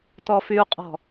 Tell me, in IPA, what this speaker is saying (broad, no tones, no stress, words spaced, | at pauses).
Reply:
tɔfyu̯qʼɔ̤